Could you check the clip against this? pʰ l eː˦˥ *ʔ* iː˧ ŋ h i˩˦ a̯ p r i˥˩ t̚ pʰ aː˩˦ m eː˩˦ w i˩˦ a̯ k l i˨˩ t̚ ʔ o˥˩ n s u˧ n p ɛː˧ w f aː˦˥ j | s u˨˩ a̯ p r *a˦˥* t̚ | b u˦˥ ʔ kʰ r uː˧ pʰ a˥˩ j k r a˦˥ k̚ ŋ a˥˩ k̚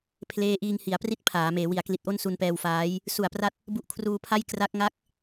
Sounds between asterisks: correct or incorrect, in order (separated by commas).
correct, correct